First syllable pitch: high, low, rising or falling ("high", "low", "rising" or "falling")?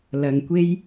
low